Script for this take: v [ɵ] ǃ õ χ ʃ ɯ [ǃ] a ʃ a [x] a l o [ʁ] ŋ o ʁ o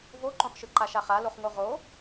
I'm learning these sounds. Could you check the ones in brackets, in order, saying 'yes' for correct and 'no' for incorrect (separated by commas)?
no, yes, no, no